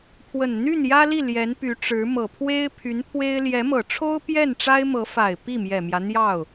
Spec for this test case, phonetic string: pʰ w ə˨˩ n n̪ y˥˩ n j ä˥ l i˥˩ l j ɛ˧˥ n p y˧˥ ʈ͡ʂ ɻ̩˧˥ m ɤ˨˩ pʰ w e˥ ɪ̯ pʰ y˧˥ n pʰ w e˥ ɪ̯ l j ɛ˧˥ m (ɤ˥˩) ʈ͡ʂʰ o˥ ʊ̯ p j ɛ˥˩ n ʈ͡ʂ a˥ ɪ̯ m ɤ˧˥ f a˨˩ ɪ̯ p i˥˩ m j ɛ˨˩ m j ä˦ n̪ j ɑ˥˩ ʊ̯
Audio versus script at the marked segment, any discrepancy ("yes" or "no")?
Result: yes